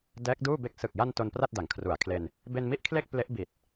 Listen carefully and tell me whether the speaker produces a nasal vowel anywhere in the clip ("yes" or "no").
no